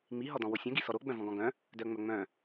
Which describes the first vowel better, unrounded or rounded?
unrounded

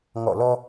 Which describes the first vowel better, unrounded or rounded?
rounded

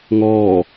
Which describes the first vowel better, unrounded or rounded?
rounded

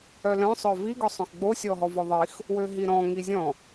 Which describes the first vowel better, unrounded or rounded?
rounded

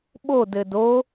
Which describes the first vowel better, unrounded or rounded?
rounded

